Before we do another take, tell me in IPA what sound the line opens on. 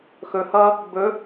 x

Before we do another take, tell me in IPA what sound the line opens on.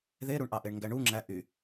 ð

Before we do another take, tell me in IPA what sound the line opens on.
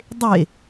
dˤ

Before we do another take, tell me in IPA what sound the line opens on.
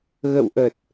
ɣ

